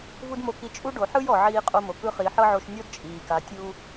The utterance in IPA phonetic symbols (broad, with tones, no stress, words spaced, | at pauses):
vu˥dmo˧ki˧˥ t͡ʃʼu˥ɖo˩˧ħɯ˥j ɔ˩ ʕiː˧qʼo˧mo˩kɯ˧˥ χi˩˧ħɤ˥ʕo˧ʃ nʲɔ˥dt͡ʃʼiː˩ka˩˧ tʲu˧